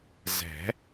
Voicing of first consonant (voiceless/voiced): voiced